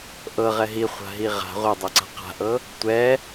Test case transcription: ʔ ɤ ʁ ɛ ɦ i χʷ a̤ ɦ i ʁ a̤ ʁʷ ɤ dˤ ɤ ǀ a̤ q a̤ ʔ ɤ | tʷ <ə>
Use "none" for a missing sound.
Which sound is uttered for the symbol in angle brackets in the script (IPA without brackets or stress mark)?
ɛ